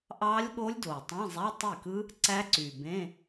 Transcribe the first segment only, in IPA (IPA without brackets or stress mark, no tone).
ʔ